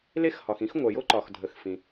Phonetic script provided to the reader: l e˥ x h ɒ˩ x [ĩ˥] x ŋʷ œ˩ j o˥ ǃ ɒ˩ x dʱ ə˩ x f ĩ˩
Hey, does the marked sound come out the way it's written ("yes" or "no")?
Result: yes